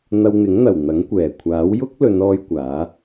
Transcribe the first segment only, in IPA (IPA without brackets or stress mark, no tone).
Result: n̪